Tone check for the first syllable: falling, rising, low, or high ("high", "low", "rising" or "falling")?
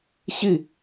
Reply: falling